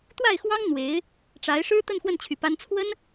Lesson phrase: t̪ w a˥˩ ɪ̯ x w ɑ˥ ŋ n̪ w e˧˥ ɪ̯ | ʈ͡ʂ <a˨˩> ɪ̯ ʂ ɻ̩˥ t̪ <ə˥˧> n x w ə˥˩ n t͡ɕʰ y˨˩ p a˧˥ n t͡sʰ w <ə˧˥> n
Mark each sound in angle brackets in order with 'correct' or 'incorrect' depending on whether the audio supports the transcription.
incorrect, correct, incorrect

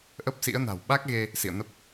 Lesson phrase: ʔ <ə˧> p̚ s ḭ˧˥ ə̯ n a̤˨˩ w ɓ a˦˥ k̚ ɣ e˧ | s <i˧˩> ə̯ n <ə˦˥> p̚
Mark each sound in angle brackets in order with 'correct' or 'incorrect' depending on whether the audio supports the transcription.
incorrect, incorrect, correct

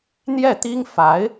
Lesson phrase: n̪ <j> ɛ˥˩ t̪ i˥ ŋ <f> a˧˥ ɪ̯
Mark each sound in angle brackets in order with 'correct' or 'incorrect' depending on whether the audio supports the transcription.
correct, correct

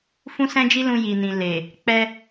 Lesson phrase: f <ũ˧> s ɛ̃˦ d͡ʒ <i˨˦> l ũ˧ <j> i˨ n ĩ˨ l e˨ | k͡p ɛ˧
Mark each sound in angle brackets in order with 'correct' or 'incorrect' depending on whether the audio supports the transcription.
incorrect, incorrect, correct

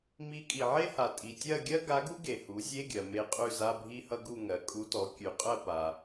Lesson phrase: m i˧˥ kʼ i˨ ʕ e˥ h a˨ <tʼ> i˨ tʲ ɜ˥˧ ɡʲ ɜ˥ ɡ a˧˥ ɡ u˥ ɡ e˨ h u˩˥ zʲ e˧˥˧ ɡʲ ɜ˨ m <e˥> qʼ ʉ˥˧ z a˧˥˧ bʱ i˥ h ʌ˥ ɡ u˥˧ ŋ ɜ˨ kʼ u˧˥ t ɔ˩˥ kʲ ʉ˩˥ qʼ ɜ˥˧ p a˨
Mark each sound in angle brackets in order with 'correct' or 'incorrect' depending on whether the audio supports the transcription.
correct, incorrect

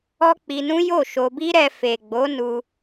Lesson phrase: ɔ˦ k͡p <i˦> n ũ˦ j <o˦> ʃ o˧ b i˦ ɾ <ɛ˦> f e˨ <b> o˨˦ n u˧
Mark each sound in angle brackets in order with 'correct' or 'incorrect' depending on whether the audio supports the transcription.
incorrect, incorrect, incorrect, incorrect

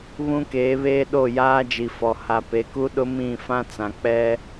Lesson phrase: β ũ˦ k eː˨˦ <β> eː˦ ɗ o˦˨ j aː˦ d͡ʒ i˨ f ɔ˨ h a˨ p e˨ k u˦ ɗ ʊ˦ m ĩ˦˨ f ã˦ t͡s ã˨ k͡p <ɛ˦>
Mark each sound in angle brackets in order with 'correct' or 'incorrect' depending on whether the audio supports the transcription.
correct, correct

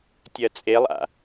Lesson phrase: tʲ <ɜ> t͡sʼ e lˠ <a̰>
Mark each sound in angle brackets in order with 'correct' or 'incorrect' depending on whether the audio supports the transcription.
correct, correct

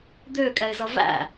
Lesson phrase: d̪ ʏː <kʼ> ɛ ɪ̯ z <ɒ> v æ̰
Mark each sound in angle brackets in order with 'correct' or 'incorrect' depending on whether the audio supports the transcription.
correct, incorrect

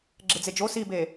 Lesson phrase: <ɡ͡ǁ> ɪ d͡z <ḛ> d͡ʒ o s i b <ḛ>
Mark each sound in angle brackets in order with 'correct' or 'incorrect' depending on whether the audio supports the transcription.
correct, incorrect, incorrect

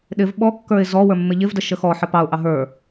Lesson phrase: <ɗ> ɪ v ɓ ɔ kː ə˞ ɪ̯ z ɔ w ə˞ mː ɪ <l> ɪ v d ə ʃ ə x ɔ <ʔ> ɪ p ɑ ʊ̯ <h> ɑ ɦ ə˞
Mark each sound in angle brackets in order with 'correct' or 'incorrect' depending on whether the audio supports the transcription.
correct, incorrect, incorrect, incorrect

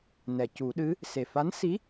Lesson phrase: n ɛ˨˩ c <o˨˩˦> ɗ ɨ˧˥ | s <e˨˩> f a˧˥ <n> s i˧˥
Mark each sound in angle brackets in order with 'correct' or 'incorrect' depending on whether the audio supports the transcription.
incorrect, correct, correct

